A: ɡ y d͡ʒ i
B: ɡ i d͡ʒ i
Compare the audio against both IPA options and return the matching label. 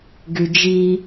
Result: A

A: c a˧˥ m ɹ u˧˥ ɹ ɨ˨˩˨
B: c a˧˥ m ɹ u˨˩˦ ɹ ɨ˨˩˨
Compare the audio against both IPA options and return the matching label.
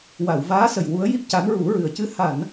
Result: B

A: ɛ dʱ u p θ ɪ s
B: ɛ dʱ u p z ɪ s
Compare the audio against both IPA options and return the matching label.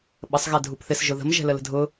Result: A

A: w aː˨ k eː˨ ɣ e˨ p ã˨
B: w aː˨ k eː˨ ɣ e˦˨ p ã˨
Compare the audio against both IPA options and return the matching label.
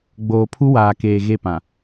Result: B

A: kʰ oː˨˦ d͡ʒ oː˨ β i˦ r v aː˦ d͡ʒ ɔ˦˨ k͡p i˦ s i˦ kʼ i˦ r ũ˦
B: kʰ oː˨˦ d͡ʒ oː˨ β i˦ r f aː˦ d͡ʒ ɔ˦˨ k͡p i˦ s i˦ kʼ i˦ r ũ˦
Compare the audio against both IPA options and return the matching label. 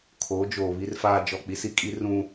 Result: B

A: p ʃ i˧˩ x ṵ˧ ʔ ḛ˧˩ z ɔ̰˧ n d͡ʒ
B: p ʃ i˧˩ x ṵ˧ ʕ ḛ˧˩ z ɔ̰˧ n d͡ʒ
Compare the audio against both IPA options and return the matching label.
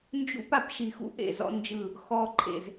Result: A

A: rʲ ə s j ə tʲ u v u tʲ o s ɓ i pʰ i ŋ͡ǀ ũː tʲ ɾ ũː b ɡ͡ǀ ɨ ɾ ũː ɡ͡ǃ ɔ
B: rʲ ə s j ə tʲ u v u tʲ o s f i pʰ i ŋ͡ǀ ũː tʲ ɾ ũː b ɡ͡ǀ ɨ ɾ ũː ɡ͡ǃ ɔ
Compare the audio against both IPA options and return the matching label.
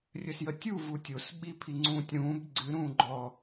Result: A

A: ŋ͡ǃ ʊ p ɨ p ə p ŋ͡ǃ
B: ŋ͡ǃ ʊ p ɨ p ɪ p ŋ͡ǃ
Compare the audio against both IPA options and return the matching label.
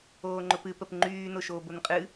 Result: A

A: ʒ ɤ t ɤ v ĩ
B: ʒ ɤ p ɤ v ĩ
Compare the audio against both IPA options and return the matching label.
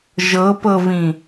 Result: B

